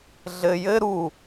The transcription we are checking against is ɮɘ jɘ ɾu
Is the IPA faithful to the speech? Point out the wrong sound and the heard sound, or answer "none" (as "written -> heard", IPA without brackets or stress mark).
none